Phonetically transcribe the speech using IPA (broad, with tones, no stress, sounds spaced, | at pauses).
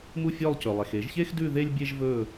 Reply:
m u˥˨ fʲ œ˥˨ lˠ c ɵ˩ lˠ ɛ˩ x e˨˩˦ ʒ ç e˥ x d ʉ˥˨ ð e˥ lʲ bʲ e˥ ʒ v ɵ˥˨